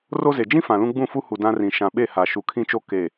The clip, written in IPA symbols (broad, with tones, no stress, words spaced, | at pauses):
ro˦ze˨ d͡ʒĩ˦ fã˨lũ˦ ɡ͡bũ˦˨fu˦hu˨ dã˦rĩ˨ ʃã˨ɓe˦˨ ha˨ ʃu˨kʰĩ˦t͡ʃo˦ ke˨